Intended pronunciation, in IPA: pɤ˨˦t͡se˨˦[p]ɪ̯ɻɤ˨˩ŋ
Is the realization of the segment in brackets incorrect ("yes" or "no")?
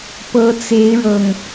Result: yes